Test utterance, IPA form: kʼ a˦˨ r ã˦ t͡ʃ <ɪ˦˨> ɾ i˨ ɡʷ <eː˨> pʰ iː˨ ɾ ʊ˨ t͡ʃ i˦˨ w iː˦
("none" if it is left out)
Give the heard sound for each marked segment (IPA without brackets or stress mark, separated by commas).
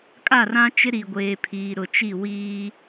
ɪ˦, eː˨